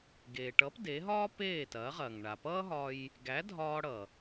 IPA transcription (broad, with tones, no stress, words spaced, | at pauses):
ɡeː˩ʈʌ˩˥p de˩˥ɦɒː˥ peː˥˩tɐː˩˥ʁɐː˩ŋ ɳa˩pʌː˥ ɦɒ˧j | ɡæ˩˥ dʱɒː˧ɽʌ˩